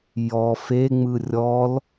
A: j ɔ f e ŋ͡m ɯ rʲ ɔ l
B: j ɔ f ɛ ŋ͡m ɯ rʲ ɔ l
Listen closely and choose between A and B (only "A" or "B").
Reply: A